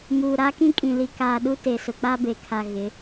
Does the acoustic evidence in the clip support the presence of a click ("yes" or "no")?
no